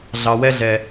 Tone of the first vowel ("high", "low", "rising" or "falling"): low